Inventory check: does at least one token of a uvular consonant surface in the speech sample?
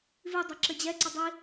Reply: no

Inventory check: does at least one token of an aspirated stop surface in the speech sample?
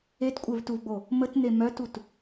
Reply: no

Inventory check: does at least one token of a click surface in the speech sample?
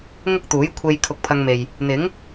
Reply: no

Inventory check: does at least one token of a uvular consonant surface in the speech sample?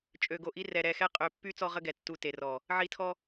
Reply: yes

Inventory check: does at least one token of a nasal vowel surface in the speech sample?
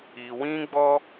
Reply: yes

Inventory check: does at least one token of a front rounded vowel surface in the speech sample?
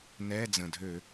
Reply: yes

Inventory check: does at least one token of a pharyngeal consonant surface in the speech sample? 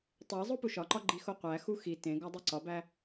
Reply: no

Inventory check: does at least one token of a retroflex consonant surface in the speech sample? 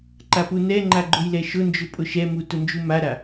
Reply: no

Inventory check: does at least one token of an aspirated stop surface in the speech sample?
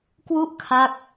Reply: yes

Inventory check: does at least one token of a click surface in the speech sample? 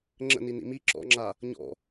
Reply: yes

